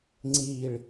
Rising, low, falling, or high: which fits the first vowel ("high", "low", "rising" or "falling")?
falling